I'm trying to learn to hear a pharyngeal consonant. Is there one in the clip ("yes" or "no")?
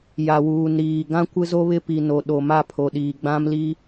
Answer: no